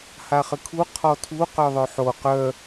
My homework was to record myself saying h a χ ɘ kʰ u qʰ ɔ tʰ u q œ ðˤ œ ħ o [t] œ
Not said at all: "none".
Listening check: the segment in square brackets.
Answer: q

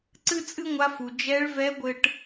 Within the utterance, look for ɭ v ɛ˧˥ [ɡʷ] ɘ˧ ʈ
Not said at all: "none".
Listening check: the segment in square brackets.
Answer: ɡʷ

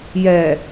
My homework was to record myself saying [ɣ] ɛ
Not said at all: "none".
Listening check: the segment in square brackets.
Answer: j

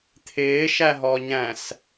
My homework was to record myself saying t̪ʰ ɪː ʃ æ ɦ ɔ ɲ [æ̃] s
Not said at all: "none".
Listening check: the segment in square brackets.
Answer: æ̃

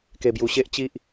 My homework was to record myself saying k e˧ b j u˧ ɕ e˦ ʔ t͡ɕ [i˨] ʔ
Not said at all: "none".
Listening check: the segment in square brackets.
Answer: i˦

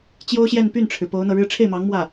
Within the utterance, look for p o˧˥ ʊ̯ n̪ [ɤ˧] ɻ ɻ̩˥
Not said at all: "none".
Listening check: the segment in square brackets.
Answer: ɤ˧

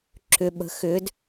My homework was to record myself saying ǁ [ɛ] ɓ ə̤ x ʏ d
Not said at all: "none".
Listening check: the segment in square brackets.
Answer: ʏ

